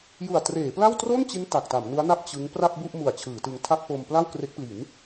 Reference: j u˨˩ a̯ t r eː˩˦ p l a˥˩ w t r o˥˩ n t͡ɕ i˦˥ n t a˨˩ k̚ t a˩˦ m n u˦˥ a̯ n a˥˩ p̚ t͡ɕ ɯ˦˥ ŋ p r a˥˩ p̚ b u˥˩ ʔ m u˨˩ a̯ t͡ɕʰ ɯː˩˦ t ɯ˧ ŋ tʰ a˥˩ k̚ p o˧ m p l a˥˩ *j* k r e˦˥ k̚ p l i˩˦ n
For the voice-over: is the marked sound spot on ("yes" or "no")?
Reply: no